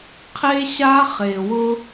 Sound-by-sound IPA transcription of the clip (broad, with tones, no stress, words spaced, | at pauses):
qʰe˦ɕa˦χe˨ wʊ˦